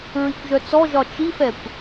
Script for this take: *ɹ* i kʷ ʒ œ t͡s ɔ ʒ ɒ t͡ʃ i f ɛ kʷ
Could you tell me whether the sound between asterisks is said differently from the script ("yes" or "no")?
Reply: no